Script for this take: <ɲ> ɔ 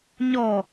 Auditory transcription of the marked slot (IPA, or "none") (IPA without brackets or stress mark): ɲ